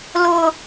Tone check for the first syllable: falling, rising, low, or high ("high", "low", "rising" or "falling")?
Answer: high